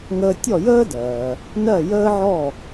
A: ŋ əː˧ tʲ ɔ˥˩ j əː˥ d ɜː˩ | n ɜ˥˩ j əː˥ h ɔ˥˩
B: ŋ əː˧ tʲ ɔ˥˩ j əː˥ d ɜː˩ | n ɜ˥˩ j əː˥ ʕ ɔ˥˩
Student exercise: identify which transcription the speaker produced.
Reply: B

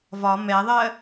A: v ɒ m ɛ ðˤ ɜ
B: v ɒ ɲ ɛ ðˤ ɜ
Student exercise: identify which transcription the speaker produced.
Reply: A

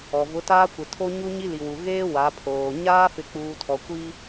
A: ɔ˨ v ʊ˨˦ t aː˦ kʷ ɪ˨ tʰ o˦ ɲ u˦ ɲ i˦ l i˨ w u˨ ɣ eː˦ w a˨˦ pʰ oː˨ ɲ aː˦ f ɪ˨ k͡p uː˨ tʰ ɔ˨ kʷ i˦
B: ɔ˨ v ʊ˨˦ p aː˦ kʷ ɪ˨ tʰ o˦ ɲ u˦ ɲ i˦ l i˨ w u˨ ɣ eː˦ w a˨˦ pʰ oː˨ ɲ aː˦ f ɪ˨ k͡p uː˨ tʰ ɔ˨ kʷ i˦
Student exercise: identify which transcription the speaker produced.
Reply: A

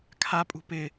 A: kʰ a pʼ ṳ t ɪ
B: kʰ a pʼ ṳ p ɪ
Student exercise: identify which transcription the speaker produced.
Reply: B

